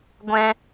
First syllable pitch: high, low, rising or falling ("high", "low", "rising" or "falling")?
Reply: high